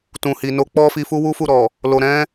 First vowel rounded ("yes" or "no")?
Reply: yes